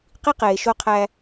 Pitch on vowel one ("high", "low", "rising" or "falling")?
high